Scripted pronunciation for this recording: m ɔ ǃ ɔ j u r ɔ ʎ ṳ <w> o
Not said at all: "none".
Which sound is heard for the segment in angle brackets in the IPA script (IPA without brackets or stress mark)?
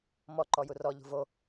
v